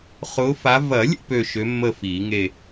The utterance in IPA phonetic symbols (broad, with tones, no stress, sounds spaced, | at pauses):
χ ʊː˨˥ f a˨˥ v ɐ˨˩˦ lʲ ə̰˦˨ p ø˦˨ ʃ ø˨˥ mː ə˦˨ f iː˨˩˦ ŋ e˦˨